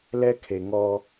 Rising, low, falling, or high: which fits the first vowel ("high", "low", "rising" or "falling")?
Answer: high